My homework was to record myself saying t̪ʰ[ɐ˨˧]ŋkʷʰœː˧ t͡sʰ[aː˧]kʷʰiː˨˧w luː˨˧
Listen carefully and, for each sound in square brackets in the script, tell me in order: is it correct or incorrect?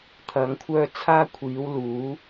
correct, correct

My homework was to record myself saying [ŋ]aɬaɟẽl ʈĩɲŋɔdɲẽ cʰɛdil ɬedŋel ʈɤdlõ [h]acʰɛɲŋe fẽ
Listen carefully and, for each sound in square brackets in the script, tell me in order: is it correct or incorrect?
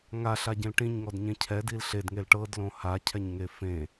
correct, correct

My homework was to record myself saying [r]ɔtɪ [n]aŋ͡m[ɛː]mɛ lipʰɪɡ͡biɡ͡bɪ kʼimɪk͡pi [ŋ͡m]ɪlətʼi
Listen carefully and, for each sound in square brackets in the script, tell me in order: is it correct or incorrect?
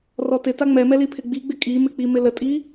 correct, incorrect, incorrect, incorrect

